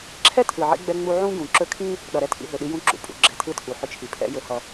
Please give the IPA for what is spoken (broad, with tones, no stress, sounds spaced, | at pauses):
ǁʰ ɛ˦ tʰ ɯ˨ ʕ ḭ˧ ɡ͡b ɛ˧ ŋ͡m u˧ ʕ ũ˦ ɡ ũ˨ ǁ ɵ˧ kʰ ĩ˦ | ɗ ʌ˨ ɾ ɛ˧ tʰ ḭ˧ ɦ ɵ˨ ɗ i˦ j ũ˦ ǁ ṵ˨ pʼ ṵ˧ ɡ͡ǁ ɛ˧ tʰ ɯ˦ tʰ u˨ ħ ʏ˧ t͡ʃʰ i˨ pʰ ɛ̰˦ j ɵ˧ h ʌ˧